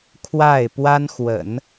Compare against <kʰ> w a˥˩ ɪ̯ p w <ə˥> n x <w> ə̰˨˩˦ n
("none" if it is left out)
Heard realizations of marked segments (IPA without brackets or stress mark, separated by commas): kʰ, a˥, w